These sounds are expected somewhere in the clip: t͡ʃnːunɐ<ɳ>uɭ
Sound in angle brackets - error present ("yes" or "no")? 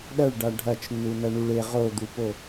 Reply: no